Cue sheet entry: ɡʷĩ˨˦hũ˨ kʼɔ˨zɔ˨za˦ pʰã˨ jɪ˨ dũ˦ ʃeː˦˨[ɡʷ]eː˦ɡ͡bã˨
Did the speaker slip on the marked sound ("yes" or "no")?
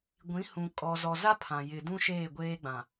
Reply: no